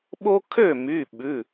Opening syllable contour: high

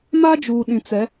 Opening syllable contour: high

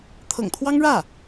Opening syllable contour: low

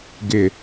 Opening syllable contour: low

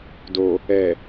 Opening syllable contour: low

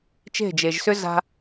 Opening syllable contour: falling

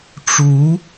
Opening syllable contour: rising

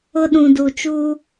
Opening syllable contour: high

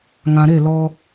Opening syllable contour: low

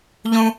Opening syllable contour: high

